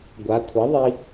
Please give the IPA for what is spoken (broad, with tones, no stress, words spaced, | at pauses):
ɡʷa˩˧kʷʰɐ˩˥ðˤi˧